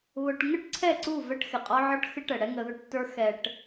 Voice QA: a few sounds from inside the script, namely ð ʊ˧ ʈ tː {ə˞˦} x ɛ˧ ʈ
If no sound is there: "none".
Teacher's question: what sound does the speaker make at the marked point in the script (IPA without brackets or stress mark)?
ə˞˦